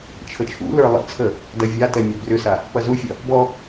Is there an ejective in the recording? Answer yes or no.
no